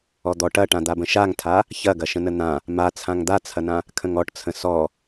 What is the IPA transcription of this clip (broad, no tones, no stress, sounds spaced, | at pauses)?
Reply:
ɔ d̪ ɔ ʈ ɐ ʈ ã d̪ a b ə̃ ʃ a ŋ tʰ a | ç ɐ ɡ ɐ ʃ ə̃ n ə n̪ ã | m a t͡sʰ ã ŋ d̪ a t͡sʰ ɐ n ã | kʰ ə̃ ŋ ɔ ʈ t͡sʰ ə̃ s ɔ